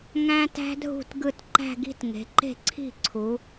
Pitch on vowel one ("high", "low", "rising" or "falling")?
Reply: high